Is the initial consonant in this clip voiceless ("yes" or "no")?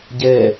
no